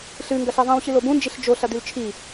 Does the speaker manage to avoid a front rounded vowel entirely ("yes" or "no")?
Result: yes